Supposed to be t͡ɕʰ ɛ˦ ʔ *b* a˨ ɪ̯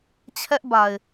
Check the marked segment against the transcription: correct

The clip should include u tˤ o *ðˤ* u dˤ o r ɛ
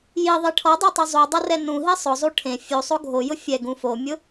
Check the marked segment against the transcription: incorrect: zˤ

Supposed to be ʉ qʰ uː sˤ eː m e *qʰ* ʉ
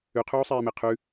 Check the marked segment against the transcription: correct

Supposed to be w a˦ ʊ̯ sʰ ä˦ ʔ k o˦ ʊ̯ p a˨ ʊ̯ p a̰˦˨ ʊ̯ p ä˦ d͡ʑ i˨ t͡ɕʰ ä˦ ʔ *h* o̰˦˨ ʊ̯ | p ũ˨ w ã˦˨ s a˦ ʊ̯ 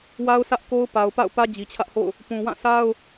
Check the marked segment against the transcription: correct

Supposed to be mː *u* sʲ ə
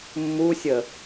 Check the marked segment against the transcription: correct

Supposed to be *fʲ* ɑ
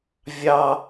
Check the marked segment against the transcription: incorrect: vʲ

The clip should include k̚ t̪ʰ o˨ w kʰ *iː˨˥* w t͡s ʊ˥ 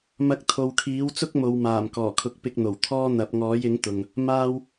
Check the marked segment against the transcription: correct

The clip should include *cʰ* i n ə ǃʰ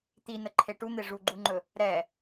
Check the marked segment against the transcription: incorrect: t̪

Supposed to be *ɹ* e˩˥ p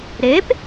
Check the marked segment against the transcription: incorrect: ɾ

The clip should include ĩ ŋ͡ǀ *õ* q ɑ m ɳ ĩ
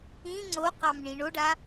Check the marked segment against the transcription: incorrect: o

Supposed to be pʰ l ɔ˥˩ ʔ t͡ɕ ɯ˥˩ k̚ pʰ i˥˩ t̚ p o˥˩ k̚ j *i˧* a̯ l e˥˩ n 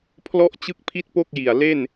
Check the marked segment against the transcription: incorrect: i˨˩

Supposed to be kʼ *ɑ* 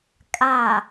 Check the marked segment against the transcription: incorrect: a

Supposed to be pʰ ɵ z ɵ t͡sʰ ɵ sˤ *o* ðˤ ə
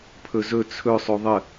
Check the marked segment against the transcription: correct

